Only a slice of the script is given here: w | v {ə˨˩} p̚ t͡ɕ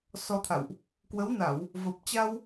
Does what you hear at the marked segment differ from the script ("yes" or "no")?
no